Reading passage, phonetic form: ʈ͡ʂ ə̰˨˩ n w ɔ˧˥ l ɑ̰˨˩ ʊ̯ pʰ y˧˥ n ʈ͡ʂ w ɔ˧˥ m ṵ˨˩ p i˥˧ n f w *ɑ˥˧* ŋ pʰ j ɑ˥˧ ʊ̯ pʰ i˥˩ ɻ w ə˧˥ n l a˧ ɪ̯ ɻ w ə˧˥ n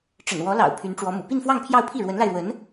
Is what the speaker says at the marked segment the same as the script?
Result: yes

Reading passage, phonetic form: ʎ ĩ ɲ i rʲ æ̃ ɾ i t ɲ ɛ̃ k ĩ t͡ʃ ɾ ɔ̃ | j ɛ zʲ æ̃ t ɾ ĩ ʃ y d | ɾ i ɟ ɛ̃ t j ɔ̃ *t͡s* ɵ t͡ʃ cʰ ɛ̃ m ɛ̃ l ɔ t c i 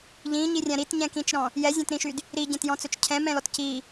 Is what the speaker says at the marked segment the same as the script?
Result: yes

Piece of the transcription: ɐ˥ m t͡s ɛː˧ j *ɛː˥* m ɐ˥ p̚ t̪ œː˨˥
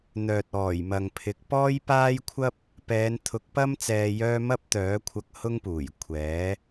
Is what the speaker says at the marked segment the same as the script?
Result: no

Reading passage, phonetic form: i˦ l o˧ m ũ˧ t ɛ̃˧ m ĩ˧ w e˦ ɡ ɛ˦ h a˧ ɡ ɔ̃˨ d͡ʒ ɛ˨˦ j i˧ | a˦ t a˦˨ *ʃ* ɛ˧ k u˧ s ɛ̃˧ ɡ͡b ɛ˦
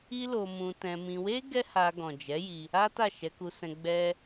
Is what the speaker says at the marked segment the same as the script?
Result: yes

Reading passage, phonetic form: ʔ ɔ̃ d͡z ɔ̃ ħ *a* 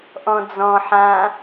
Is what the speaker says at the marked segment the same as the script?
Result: no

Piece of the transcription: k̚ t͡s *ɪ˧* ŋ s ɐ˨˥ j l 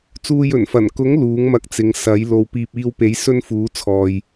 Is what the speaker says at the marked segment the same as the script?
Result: no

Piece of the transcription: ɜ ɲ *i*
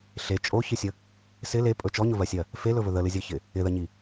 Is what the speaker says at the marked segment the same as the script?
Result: yes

